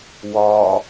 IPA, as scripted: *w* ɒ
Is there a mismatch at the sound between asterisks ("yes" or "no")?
no